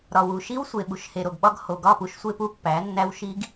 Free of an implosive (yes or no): no